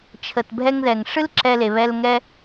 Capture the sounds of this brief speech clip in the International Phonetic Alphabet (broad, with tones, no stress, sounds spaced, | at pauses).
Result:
t͡ʃʰ ə˨ t bʱ ɛ˧ ŋ ð ɛ˨ ŋ ʂ ɨ˦ l ǁ ɛ˧ l e˨ β ɛ˧ l ŋ ɛ˦